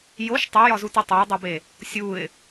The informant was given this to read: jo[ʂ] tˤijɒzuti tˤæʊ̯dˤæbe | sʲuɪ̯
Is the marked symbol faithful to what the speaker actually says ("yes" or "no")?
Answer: no